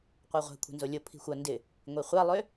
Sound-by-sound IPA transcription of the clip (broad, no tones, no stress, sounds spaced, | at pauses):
qʷ a ʁʷ ɛ̤ kʷʰ ɛ̤ n z o lʲ o pʰ i̤ xʷ ɐ n d ɪ | ŋʷ i χʷ a lˠ ø